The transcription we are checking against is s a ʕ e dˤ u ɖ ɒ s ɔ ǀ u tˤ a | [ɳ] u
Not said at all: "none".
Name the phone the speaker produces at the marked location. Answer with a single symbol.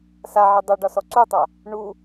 ɳ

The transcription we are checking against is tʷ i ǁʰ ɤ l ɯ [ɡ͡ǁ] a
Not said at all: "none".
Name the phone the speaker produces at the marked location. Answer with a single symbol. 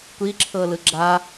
ɡ͡ǁ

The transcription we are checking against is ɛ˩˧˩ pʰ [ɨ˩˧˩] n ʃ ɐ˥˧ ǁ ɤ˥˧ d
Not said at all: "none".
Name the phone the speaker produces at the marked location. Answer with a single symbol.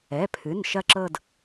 ɨ˩˧˩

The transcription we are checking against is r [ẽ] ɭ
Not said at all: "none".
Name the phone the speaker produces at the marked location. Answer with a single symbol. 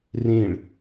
ẽ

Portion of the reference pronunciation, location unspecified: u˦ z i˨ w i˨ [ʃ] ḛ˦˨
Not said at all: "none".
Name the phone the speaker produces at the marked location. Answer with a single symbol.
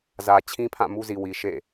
ʃ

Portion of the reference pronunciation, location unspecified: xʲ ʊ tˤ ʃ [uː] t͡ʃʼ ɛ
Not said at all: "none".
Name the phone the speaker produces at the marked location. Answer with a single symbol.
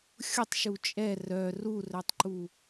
u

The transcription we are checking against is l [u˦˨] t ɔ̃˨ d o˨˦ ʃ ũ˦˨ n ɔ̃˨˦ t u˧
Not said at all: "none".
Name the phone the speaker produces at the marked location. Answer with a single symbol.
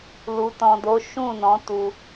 u˨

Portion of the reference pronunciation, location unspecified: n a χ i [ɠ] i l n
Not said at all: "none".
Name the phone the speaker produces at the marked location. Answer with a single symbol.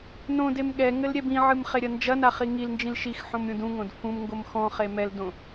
ŋ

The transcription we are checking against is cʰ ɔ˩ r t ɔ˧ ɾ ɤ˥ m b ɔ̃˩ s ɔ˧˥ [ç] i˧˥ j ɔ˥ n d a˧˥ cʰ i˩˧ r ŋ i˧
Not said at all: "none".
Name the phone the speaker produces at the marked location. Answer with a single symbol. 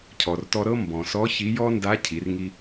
ç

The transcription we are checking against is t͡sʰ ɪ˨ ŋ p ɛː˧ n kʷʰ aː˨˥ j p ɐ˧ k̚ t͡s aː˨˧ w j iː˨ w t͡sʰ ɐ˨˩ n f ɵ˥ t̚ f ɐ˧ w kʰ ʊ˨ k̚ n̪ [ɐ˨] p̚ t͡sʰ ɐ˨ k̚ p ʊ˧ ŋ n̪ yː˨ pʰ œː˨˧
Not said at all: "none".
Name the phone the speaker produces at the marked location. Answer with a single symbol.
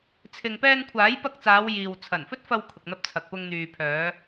ɐ˧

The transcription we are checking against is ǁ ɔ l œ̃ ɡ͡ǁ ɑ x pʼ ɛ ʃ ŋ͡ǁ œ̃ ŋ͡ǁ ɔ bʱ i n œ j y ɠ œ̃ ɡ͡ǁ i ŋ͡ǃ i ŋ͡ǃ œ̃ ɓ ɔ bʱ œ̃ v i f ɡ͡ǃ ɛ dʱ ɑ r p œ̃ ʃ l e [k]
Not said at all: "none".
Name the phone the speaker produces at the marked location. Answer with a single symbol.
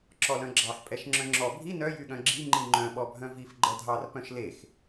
x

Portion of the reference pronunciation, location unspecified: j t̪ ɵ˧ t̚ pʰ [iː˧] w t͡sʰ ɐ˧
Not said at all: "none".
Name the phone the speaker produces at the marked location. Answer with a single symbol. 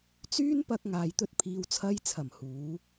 iː˨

